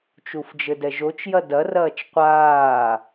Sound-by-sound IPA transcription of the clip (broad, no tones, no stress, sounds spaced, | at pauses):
t͡ʃ u f d͡ʒ ɘ d ɛ ʒ o t͡ʃ j ɐ d ɐ r ɐː t͡ʃ qʷ aː